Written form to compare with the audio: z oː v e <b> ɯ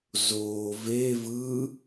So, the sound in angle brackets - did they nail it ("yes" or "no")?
no